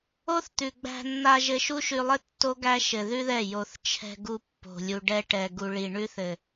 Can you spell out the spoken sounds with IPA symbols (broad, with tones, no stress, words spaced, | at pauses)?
o˦θt̪ʉ˨ ɡ͡bæ̤˧nːa˧ ʒɘ˧ʃu˦ʃʉ˧lˠɘ˦ tːo˦ɡæ˦ ʃɘ˧ðʉ˦ðɛ˦˨ jo˨θ t͡ʃʰɛ̤˧ɡu˧ pːo̤˨ lʲu˨ɖɛ˧ʈɛ˨ ɡu˨ɭi˨ ɳʉ˧θɘ˨